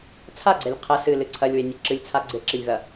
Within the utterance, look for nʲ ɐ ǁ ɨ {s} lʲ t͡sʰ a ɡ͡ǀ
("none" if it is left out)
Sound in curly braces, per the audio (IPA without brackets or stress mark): none